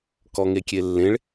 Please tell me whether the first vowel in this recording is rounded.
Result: yes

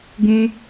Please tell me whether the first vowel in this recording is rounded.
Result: yes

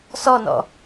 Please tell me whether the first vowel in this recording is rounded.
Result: yes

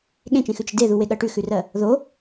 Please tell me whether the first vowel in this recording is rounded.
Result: no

